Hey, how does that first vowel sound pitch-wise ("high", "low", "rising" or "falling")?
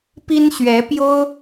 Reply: high